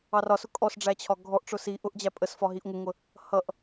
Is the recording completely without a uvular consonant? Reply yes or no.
yes